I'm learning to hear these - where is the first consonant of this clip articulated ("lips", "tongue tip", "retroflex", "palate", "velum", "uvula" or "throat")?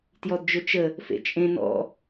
tongue tip